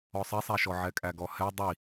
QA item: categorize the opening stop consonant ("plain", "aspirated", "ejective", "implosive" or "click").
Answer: ejective